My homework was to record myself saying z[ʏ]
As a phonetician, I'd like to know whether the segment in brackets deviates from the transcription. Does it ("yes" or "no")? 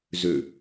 no